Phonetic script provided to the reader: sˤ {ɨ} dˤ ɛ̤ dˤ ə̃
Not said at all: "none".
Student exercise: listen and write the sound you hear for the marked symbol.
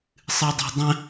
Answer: ɨ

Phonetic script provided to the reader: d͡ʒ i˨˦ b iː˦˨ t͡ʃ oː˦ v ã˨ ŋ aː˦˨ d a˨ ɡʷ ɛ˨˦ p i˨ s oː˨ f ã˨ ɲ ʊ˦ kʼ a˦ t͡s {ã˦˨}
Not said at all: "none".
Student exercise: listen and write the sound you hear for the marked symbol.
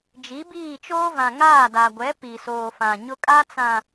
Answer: ã˨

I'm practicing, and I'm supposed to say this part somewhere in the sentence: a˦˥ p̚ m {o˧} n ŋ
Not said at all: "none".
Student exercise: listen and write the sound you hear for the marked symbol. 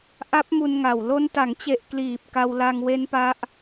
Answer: u˧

